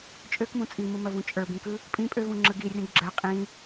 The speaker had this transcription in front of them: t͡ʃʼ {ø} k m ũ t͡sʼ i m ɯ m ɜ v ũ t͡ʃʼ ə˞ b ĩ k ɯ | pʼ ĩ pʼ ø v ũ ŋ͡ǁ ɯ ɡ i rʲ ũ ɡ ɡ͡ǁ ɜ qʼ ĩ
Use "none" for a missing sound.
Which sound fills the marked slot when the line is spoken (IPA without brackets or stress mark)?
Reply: ø